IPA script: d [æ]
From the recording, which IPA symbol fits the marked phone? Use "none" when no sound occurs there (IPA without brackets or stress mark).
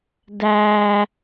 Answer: æ